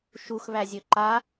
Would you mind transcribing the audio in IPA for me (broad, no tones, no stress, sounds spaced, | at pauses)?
ʃ u x β æ zʲ ɵ ǃ a